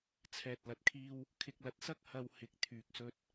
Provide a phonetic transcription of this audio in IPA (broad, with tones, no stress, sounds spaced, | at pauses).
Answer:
t͡sʰ ɛː˨ t̚ l ɐ˨ t̚ kʰ iː˧ w | kʰ ɪ˨ k̚ l ɐ˨ t̚ s ɐ˥ k̚ h ɐ˧ w h ɪ˨˥ k̚ t̪ʰ yː˨ k̚ s ɵ˧ t̚